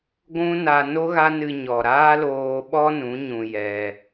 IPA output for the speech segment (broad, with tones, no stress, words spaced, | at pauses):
ɡʷũ˦na˧ no˦ɣa˦nɨ˧ɲɔ˨ ɾaː˦loː˧ɓɔ˦nũ˨˦ ɲũ˧jɛ˧